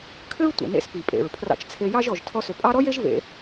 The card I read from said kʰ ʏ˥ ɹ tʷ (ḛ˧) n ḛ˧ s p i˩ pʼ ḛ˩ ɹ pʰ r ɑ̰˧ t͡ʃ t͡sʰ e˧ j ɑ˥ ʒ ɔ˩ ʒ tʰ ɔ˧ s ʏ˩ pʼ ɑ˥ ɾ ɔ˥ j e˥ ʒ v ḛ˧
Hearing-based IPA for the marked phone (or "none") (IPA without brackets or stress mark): ḛ˩